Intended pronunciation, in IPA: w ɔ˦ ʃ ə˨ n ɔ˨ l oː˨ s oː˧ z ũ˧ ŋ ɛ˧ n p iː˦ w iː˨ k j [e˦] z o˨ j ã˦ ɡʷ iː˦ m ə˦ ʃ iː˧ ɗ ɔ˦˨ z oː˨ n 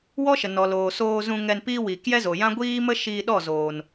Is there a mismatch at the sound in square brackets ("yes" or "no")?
yes